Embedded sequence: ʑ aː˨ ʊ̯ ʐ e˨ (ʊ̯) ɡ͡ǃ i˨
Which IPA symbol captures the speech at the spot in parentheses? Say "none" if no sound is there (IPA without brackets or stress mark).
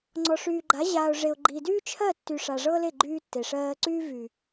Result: ʊ̯